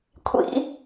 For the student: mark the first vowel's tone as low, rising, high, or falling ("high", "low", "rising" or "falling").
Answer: high